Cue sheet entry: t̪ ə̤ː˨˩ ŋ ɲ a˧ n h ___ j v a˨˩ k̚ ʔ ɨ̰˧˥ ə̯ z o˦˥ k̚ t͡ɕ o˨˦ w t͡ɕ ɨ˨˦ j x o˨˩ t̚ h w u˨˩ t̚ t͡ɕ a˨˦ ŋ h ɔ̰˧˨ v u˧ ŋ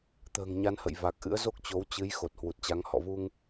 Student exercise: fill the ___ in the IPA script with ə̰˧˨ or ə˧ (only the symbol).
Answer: ə̰˧˨